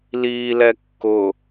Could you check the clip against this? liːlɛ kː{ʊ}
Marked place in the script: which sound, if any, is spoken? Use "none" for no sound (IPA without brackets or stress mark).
ʊ